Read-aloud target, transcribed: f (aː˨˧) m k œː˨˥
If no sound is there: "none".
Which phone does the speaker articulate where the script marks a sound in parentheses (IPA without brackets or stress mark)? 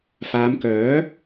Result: aː˨˧